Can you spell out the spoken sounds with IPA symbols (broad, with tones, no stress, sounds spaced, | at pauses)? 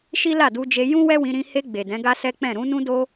ʃ i˦ l a˦˨ d u˧ d͡ʒ e˧ j ũ˦ w ɛ˦ w ĩ˧ ɾ ĩ˧ h e˧ ɡ͡b e˨ d ɛ̃˨˦ ɡ a˦ s ɛ˦ k͡p ɛ̃˦˨ ɾ ũ˨˦ n ũ˦ d o˦